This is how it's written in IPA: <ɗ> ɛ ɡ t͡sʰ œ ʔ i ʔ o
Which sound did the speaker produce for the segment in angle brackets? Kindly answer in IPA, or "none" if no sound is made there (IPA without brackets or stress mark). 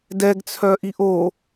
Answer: d